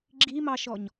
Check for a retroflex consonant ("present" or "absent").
absent